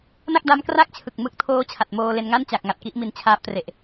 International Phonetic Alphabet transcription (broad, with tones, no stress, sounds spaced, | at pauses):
n a˥˩ k̚ d a˦˥ m k r a˥˩ k̚ t͡ɕʰ ɯ˨˩ k̚ m ɯ˦˥ k̚ tʰ oː˦˥ t͡ɕʰ a˨˩ t̚ m oː˧ l e˧ n ŋ a˥˩ n t͡ɕ a˨˩ k̚ ŋ a˨˩ t̚ k i˦˥ ʔ m i˨˩ n t͡ɕʰ aː˦˥ p̚ t r e˨˩ ʔ